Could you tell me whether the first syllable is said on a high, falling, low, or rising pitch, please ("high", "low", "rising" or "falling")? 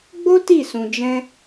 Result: high